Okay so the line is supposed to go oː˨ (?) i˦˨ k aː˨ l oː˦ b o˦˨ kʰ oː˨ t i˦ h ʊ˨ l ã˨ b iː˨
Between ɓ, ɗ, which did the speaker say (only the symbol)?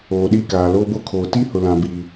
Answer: ɗ